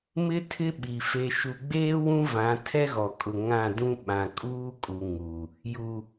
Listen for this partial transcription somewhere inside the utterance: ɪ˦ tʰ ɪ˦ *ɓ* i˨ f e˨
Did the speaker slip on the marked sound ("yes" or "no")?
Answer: no